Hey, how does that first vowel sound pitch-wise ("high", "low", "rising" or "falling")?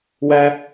high